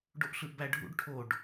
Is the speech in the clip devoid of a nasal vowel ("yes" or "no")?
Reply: yes